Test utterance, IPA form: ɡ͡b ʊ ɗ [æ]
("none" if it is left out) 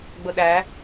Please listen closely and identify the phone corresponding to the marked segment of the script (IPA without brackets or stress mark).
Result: æ